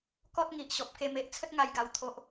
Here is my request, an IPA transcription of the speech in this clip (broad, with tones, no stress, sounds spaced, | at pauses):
k ɔ˦ t̚ ŋ i˨ ʔ ɕ ɔ˨ p̚ k e˧ m e˦ ʔ t͡sʰ ə˦ t̚ ŋ a˧ j ɡ a˧ w t̪ʰ o˦ ʔ